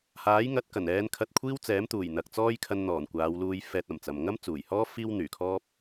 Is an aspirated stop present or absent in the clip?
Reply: present